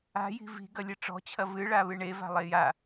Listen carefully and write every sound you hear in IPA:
a̤ j i̤ v i̤ ɡ ɐ lʲ ɨ ʈ͡ʂ ɔ̤ t͡ɕʰ ɐ v ɨ ɭ a β ɨ ɳ e v a̤ lˠ e j a

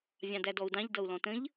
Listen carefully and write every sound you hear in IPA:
vʲ ɑ̃ d æ d ɔ u̯ d ɑ̃ ʎ d ʌ u̯ l ɔ̃ t ə̃ ʎ

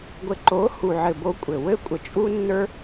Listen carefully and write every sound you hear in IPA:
ɡʷ ɘ˨ ǃ o˨˦ h u˨ ʕ ɘ˨ b o˧ kʷʼ ɘ˨ w ɘ˦ kʷʼ ə˨ t͡ʃʼ u˦ nː ə˞˦

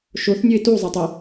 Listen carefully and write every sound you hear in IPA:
ʃ o θ nʲ o ɪ̯ t u zˤ ə tˤ ə

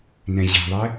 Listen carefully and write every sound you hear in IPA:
n ɛ̃ ʑ ɛ̤ ðˤ ɛ

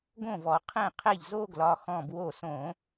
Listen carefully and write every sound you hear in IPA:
ɡ õ˥˩ v ɔ˧˩˧ qʰ ɛ̃˥˩ qʰ ɛ˥˩ ʎ z o˥˧ ɡ l ɒ˩˧˩ x ɔ̃˥˩ b w o˥˩ s õ˧˩˧

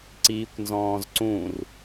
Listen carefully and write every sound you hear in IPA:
ǀ iː kʷ n z ɔ̃ː z ǀ ũ r

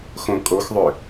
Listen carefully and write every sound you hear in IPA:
x õ kʼ o x ðˤ ʏ

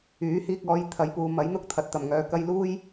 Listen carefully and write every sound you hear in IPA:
yː˨˥ h iː˧ k̚ ɔː˨˧ j t̪ʰ ɐ˨˧ j p uː˨ m ɐ˨˥ j n̪ ʊ˥ k̚ t̪ʰ ɐ˨ t̚ t̪ ɐ˨˩ m ŋ œː˨ k ɐ˧ j l uː˥ j

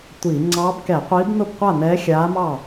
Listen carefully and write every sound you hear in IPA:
tʷ i˧˩˧ ŋ͡ǀ ɑ˧˥ b k ɛ˧˩˧ qʷ iː˧˥ b n ʊ˥˩ b qʷ a˥˩ n ɛː˧˥ xʲ aː˧˥ m ɑ˥˩

